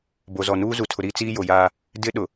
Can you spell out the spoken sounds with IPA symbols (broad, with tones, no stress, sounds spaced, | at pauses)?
b o˨ z ɔ˨ n uː˦ z u˨ tʰ ʊ˨ ɾ iː˦ t͡s iː˦ j o˨ j aː˦ | d ɪ˦ ɗ ʊ˨